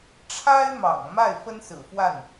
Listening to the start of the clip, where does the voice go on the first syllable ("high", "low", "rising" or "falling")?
high